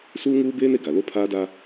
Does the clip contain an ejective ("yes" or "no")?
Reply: no